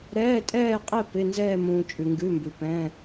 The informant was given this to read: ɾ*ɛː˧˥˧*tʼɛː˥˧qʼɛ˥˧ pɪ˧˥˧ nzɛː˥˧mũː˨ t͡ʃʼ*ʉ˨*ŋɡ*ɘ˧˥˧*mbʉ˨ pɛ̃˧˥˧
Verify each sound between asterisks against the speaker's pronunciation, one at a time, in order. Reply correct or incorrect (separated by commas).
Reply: correct, correct, incorrect